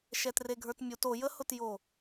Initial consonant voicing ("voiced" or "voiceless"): voiceless